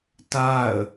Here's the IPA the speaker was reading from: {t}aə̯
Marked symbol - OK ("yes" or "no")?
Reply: yes